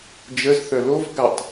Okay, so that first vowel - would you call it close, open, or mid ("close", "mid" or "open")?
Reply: mid